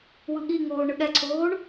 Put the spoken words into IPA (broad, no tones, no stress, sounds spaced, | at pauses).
w ɯ ɠ i ŋ oː ɳ ɯ ɠ ɛ ǀʰ oː ɳ